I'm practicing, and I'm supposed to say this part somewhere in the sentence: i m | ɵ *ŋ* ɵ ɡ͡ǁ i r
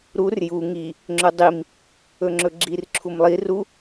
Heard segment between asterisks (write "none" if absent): ŋ͡ǁ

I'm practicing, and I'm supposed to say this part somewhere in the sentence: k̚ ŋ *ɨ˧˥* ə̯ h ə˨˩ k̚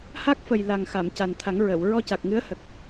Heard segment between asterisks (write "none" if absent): ɨ˧˥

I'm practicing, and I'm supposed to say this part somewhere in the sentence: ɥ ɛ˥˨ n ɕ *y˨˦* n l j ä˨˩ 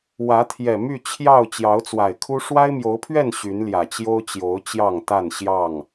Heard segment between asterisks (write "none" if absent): y˨˦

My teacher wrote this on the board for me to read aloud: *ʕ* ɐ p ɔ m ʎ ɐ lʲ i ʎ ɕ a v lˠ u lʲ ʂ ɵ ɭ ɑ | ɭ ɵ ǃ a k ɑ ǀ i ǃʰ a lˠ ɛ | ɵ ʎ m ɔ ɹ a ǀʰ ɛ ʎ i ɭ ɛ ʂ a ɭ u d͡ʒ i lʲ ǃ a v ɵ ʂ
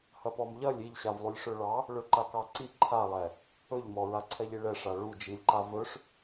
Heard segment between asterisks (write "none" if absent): h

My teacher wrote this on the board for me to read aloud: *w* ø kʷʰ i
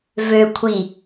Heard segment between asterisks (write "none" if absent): v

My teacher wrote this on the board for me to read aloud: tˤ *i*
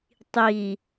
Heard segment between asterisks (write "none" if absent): i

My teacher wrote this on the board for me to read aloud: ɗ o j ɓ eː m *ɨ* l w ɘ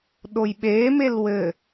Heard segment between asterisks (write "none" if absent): e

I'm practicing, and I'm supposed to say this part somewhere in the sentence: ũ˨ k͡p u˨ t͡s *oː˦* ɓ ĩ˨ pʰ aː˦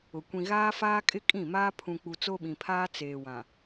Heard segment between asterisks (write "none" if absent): o˦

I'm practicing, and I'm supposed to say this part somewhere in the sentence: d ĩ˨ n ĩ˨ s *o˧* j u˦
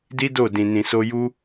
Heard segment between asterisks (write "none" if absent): o˧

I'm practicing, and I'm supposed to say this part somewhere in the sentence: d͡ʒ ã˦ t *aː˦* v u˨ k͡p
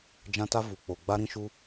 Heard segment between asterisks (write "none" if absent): a˦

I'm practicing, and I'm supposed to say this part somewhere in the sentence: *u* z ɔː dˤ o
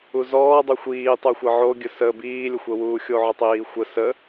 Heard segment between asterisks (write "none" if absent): u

